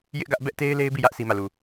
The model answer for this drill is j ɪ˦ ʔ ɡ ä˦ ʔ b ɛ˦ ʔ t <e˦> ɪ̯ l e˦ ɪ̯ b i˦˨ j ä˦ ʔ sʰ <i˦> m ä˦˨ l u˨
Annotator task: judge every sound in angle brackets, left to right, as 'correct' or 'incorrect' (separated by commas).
correct, correct